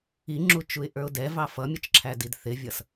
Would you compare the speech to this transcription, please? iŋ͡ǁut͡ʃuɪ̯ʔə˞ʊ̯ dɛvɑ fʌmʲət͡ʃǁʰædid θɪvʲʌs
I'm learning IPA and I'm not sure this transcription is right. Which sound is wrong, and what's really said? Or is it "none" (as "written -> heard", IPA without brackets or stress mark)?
none